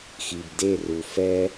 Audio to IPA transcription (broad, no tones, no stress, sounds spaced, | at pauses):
x i b d e r u f ɛ